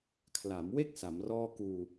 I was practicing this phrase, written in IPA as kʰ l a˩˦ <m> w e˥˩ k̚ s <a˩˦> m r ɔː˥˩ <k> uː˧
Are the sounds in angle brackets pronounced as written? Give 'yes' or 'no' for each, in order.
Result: yes, yes, yes

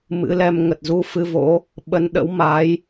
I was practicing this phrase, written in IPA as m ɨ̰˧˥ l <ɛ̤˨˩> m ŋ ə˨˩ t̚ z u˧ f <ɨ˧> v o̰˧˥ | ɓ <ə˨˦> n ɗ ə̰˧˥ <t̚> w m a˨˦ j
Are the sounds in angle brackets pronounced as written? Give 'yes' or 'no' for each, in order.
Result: no, yes, yes, no

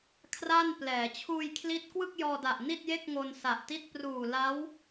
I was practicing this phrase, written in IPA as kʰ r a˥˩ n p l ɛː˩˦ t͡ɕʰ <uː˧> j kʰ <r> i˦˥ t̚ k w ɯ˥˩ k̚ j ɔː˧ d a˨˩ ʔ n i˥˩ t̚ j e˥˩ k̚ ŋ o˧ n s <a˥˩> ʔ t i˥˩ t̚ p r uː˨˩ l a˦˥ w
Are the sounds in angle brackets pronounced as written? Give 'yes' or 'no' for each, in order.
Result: yes, no, no

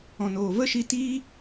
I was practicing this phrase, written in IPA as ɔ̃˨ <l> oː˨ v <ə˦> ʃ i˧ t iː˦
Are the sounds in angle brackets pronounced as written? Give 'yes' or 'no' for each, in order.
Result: no, yes

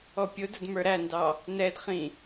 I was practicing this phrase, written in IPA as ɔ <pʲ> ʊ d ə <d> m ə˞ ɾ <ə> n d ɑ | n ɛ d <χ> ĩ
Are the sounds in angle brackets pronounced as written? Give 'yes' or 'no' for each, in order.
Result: yes, yes, no, yes

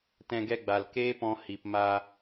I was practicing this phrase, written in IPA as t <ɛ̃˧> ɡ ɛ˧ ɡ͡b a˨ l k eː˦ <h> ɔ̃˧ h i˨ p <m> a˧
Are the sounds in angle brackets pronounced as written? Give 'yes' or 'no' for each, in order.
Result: yes, no, yes

